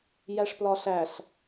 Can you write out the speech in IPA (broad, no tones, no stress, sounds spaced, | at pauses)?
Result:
j æ ʂ p l ɒ ɬ æ ɬ